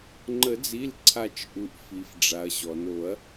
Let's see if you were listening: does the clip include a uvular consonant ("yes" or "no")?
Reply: no